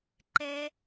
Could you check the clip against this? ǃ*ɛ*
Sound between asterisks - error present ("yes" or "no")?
no